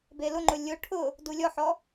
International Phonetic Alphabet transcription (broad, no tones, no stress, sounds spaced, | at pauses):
b e l ʊ ŋ͡ǃ ʊ lʲ ʊ ʈʰ ʊ | d u lʲ ɔ ħ ɔ